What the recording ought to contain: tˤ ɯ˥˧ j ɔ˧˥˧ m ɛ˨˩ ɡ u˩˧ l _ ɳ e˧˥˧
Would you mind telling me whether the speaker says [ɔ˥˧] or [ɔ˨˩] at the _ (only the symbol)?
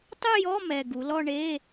ɔ˥˧